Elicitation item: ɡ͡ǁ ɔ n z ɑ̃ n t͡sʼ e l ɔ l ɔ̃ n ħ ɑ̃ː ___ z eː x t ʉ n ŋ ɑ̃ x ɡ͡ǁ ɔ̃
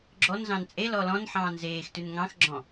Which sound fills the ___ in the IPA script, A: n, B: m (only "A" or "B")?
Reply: A